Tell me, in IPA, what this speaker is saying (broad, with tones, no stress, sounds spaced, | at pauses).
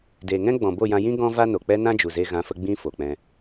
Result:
d eː˨ ŋ ɛ̃˦ ɡ͡b ɔ̃˨ b o˦˨ j ã˧ j ĩ˦ ɡ ɔ̃˦ v a˦ n o˨ k͡p ɛ˦ n ã˦ d͡ʒ u˨ z e˧ ɣ ã˨˦ f ə˧ ɡ͡b ĩ˧ f o˨ k͡p ɛ̃˧